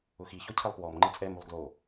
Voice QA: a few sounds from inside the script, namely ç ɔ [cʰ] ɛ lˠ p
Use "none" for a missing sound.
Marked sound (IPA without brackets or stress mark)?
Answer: cʰ